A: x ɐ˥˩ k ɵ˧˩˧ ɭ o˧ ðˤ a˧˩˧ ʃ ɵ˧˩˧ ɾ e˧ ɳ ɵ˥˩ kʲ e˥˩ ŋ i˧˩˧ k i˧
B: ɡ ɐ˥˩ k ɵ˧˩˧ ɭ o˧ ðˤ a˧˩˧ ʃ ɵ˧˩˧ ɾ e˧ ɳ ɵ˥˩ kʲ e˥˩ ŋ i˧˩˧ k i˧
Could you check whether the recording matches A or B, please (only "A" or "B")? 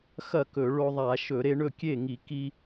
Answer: A